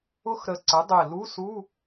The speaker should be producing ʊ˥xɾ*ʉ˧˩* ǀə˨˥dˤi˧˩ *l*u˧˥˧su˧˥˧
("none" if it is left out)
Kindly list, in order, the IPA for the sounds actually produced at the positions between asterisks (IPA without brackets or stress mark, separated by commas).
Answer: ə˧˩, l